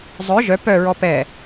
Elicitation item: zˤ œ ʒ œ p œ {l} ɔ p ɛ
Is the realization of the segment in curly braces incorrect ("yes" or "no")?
yes